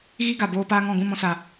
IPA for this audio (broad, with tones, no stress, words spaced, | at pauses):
ɣi˦ ɡa˨boː˦paː˦ŋɔ̃˦˨ ɡũ˦˨mɔ̃˧sa˨